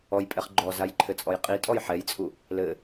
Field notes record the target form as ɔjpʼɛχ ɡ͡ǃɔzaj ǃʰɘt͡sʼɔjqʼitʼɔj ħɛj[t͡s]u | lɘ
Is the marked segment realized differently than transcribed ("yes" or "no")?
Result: yes